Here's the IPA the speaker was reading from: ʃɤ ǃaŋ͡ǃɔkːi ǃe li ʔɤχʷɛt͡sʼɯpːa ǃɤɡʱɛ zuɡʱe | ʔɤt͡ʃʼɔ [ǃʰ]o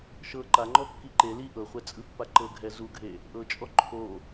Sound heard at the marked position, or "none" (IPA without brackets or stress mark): ǃʰ